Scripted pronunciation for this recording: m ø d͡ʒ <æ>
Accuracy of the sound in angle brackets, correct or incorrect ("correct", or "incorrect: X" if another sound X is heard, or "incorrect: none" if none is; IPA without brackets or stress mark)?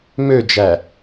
correct